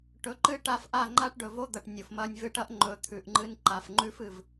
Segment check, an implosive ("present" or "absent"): absent